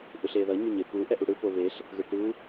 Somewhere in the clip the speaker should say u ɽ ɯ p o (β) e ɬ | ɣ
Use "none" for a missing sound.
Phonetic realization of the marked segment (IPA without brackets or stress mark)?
β